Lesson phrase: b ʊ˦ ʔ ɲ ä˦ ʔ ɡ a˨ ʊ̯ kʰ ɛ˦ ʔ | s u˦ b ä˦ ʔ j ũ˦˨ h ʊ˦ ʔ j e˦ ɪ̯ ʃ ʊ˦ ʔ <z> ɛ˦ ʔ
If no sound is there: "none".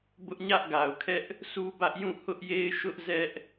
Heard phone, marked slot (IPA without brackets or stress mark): z